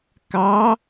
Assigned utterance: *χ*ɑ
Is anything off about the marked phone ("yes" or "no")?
yes